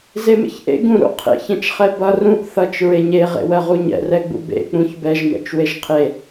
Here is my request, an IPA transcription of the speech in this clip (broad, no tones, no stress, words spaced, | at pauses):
zemḛçʔḛ ɡũɾṵ qʰḛçɛ̃t͡ʃ χɛbʌ rũʔ θʌt͡ʃ ɹeɲeʁḛwɜ ʁuɲɛ̰rɛɡ͡bṵ bḛk͡pũç bɛʒmɛ̰t͡ʃ weʒqʰe